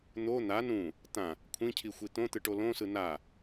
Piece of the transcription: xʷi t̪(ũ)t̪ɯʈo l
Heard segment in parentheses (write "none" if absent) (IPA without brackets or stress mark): õ